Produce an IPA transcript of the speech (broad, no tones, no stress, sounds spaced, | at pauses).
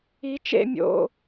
i t͡ʃ ḛ mʲ o̰